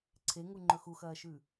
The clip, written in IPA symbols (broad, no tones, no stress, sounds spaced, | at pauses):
ǀʰ e ŋ u ŋ͡ǃ ɵ x u x ɐː ʃ ʉ